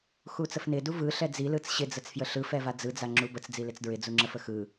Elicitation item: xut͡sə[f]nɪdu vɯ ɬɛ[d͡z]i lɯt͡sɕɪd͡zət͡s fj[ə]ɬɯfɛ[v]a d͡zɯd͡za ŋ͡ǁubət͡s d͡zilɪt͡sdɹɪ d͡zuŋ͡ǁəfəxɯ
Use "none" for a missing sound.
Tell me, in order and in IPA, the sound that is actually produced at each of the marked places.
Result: f, d͡z, ə, v

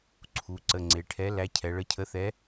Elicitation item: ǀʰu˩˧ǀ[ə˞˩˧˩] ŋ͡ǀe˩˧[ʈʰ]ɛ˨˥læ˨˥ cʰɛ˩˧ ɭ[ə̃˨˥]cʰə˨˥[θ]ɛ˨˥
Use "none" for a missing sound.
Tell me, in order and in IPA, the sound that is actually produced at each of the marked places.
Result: ə˩˧˩, ʈʰ, ə˨˥, θ

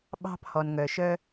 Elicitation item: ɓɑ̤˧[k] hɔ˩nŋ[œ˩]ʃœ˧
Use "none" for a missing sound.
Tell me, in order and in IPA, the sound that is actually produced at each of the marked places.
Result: p, œ˩

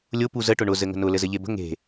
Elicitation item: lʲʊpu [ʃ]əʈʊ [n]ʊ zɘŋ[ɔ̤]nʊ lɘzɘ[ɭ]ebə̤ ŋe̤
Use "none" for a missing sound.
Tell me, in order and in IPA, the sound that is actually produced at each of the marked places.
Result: z, ɳ, ə̤, ʎ

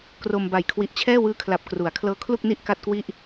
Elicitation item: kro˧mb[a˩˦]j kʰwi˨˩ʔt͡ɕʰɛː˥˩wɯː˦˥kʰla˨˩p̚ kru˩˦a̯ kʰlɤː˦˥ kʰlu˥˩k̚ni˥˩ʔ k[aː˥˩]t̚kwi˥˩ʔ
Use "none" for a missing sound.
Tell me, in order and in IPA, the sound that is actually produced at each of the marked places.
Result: a˨˩, a˥˩

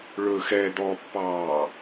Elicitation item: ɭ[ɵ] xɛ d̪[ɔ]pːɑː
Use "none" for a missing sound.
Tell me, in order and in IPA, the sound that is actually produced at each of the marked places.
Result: ɵ, ɔ

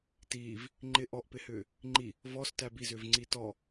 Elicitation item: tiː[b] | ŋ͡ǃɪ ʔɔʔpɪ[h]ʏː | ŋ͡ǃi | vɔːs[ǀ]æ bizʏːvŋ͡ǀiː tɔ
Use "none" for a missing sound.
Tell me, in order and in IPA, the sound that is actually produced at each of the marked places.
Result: v, h, t

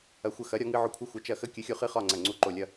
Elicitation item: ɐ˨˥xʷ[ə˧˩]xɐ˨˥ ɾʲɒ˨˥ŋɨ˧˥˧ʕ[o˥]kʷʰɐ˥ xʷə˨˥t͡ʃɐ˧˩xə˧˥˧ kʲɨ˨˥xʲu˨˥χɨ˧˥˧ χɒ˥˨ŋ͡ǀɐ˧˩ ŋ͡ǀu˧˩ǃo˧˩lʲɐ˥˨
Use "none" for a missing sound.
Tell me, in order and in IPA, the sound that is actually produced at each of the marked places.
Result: ə˧˩, o˥˨

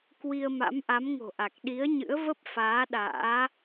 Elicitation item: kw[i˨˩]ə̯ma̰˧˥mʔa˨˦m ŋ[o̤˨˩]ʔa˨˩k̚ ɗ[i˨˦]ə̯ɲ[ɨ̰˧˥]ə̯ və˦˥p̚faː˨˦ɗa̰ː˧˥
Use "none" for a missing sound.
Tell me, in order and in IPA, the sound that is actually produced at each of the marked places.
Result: i˧, o̤˨˩, i˨˦, ɨ̰˧˥

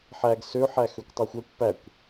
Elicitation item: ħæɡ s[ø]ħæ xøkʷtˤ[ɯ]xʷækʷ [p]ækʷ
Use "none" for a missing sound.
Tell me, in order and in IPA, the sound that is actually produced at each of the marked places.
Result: ø, ɯ, p

